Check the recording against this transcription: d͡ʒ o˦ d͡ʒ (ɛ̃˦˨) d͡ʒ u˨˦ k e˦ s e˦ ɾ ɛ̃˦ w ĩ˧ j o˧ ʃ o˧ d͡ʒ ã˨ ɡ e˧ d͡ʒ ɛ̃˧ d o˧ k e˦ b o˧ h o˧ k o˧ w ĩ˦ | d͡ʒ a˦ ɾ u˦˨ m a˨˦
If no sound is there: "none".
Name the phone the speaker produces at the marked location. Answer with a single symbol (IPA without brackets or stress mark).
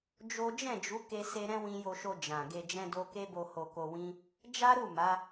ɛ̃˦˨